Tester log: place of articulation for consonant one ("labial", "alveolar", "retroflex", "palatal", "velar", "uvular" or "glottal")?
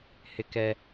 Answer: glottal